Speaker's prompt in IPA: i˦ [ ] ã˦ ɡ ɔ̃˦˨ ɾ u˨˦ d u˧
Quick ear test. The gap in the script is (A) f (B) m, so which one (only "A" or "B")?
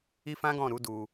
A